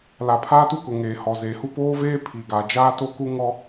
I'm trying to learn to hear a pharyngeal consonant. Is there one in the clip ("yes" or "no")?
no